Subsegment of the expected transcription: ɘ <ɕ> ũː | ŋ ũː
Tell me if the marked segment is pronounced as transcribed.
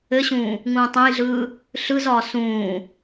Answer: yes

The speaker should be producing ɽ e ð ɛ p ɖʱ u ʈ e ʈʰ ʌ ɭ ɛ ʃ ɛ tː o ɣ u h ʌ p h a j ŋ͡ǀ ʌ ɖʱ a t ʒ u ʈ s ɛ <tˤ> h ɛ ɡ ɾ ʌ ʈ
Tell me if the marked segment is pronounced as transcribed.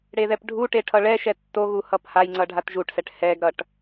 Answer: no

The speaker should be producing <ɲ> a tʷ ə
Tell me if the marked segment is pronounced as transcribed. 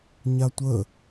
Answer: yes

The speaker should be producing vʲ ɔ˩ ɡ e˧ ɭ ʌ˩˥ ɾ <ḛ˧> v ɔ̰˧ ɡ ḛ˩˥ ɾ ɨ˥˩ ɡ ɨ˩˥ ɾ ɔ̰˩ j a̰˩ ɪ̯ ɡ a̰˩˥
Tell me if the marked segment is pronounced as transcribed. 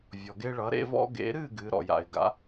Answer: yes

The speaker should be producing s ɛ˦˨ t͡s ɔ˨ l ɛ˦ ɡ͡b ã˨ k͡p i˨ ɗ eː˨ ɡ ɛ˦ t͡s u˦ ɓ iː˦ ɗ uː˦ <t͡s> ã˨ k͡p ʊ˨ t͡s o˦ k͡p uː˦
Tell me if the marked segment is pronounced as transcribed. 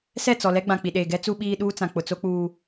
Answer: yes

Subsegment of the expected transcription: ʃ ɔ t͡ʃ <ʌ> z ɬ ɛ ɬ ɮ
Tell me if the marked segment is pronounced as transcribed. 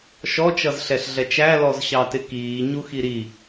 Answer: yes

